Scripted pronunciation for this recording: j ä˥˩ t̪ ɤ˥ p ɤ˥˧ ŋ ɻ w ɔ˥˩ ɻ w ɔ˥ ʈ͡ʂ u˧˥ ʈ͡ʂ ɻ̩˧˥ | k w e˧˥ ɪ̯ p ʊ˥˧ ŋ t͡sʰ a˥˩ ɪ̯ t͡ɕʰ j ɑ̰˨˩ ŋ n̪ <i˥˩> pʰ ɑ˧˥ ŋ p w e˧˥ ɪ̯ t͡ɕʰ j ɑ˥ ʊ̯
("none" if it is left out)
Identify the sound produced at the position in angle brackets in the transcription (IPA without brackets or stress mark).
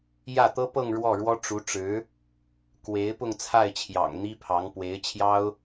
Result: i˥